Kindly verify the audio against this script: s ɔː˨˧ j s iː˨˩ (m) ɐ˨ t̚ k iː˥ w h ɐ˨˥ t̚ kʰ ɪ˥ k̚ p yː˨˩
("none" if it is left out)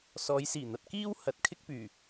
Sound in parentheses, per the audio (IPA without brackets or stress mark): n̪